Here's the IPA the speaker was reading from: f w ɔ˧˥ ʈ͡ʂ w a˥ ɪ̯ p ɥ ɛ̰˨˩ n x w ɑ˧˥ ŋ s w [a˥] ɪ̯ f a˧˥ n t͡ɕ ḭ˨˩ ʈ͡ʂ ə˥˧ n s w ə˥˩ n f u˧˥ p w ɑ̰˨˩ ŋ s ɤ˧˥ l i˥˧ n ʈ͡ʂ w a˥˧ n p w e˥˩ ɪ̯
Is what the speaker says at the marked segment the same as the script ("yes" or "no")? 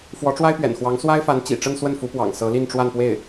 yes